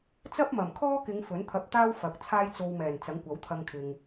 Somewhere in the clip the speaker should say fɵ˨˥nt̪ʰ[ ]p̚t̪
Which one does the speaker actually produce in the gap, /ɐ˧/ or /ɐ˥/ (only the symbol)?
ɐ˧